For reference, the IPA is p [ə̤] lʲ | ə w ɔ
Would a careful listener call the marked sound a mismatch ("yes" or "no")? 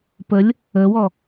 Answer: yes